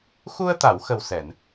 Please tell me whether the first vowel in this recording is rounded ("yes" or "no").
yes